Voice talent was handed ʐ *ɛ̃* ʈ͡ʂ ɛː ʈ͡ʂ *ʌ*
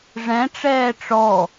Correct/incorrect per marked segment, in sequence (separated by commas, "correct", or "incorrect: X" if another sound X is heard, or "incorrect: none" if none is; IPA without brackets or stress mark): correct, incorrect: ɔ